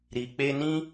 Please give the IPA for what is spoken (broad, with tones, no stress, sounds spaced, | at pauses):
ɾ i˨ k͡p e˧ n ĩ˦